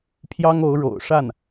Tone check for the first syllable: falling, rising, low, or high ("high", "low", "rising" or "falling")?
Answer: high